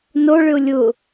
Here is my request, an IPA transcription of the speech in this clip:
n o ɭ ʏ ʊ̯ lʲ ʊ

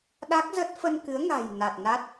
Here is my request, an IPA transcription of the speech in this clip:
ɗ a˦˥ k̚ z ə˦˥ t̚ f ə˧ n k ɨ˨˦ ə̯ ŋ a̤˨˩ j n a˨˩ t̚ n a˦˥ t̚

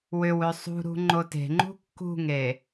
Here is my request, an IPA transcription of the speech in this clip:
w ʏ w ø sˤ ṳ ɾ ṳ ŋ͡ǃ o t e̤ ŋ͡ǃ ṳ kː ṳ ŋ e

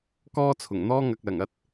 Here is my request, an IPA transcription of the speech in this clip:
k ɔː˥ t͡sʰ ʊ˨˩ ŋ n̪ ɔː˥ ŋ ɐ˧ k̚ l ɐ˨˩ ŋ ɐ˥ t̚

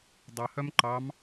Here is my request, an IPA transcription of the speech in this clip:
dˤ ɑ h œ m ǃ ɑ m

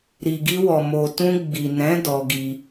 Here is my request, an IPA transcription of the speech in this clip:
ɾ i˨ ɡ i˧ w ɔ˨ m o˨ t ũ˧ ɡ͡b i˨ n ɛ̃˨˦ d ɔ˧ ɡ i˧

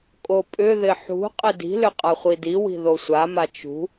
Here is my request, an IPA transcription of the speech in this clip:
kʼ o pʼ ʏ ð ɪ ħ ṳ qʼ ɪ d i̤ l ʏ qʼ a χʷ i d i w i̤ ð o sʷ a m a t͡ʃ ṳ

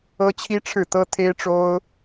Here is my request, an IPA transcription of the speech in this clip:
ɤ˥ t͡ɕʰ i˥ ʈ͡ʂʰ ɻ̩˥˩ t̪ ɤ˥ t̪ʰ e˥ ɪ̯ ʈ͡ʂ o˥ ʊ̯

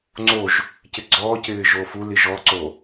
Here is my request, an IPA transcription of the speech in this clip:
ŋ͡ǀ o ʒ | c ɪ ɡ͡ǀ ɔː c ɪː ʒ oː f u l i ʒ ɔ ǀ o

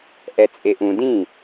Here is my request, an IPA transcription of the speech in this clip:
ʔ ɛ t͡sʼ e ʔ ũ d ĩ

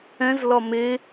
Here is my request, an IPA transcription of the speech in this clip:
ɛ̃ z l ɒ m e

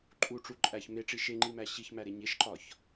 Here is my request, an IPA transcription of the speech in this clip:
ǃʼ u ʈ͡ʂ u ǃʼ æ ç m e ʈ͡ʂ i ʃ e ŋ͡ǃ i m æ ɕ i ç m æ ɾ e ɲ e ʃ ǃ ɒ ç

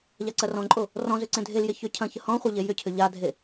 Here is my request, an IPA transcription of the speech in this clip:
ʎ a ǀ ɐ r ɔ̃ ǃʼ o | r ɔ̃ z ʏ ǀ ẽ dʱ e l j e ç ʏ cʰ ɐ̃ ç ə h ɔ̃ χʷ ɐ ʎ e j ʏ cʰ ʏ ʎ a dʱ e

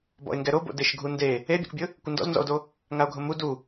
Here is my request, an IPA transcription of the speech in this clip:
b ɔ̰ e̯ ŋ ɡ ɛ ɾ o b o̰ d ɪ ʃ ɡʱ u n d e | e bʲ o̰ k bʲ ʊ | kʷ ɪ n d ɔ̰ z n z ɔ̰ o̯ d o | ŋ a o̯ ɡʱ ʊ m u d u

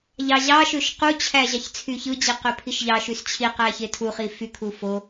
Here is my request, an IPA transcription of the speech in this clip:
ʎ ɑ ʑ ɑ ʃ ø ʃ q u t͡ɕʰ æ ʑ ɑ ç t͡sʰ y ç ɯ d͡ʑ i q ø pʰ i ʃ ʎ ɑ ʃ y s t͡ɕʰ i q æ ç e tʰ u χ i f y kʰ u f o

